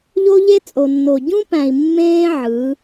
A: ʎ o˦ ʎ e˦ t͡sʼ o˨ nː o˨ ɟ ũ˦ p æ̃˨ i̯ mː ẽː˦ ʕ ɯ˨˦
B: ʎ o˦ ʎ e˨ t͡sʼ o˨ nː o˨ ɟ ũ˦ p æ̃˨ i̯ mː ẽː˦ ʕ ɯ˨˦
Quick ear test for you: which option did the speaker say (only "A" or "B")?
A